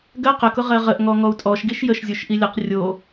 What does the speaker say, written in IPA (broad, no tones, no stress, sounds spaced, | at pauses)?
ɡ ɜ q ə k ʊ ʁ ɜ ʁ ə ʔ ŋ ɔ ŋ ɔ u̯ tʼ ɔ ʃ ɡ i ʃ j ə ʃ zʲ o ʃ ʔ i lʲ ə q rʲ o